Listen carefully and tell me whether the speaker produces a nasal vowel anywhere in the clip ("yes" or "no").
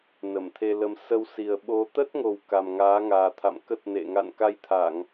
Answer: no